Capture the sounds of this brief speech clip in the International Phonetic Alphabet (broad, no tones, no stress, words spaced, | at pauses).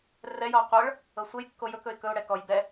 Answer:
rɛjɔ qʷɤɭ | ɤsʷɘj kːojɵk ɵɪ̯kɵʊ̯ ɽɛkɔj bɛ